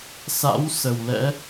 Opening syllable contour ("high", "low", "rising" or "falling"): rising